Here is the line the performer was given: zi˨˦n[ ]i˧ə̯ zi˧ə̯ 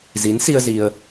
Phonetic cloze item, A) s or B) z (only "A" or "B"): A